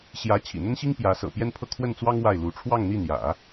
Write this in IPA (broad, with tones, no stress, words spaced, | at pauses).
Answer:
ɕjä˧˥ t͡ɕʰḭ˨˩n̪ə˥nɕi˥ŋ pjä˧˥sɤ̰˨˩ pjɛ˥npʰɤ˥˧ kʰwə˥˩nt͡swɑ˥ŋ wa˥˩ɪ̯lu˧˥ ʈ͡ʂʰwɑ˥˧ŋn̪i˥˩n̪jä̰˨˩˦